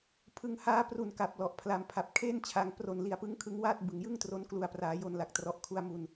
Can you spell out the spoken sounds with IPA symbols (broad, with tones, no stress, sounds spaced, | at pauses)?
pʰ ɯ˧ ŋ h aː˦˥ p r u˨˩ n k a˨˩ p̚ l ɔ˨˩ ʔ pʰ l a˧ m pʰ a˨˩ p̚ kʰ eː˥˩ n t͡ɕʰ a˨˩ ŋ p r o˨˩ n l i˨˩ a̯ p ɯ˦˥ ŋ kʰ ɯ˦˥ ŋ w aː˥˩ t̚ b ɯ˨˩ ŋ j ɯ˥˩ ŋ t r o˦˥ n k l u˨˩ a̯ p r aː˩˦ j o˧ n l a˨˩ k̚ t r ɔ˨˩ ʔ kʰ u˧ a̯ m u˧ n